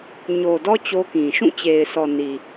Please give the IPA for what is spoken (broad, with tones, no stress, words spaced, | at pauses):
ɲo˨dɔ˦ t͡ɕo˦kĩ˨ ʃũ˦˨t͡ɕe˨ɪ̯sɔ˨ ni˨